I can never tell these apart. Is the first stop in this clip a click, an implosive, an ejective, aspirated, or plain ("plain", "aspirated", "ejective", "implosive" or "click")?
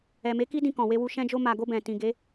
plain